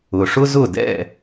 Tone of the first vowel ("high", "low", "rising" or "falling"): low